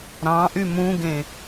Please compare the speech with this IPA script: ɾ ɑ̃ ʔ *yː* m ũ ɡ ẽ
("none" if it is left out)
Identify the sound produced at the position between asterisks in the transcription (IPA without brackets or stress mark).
y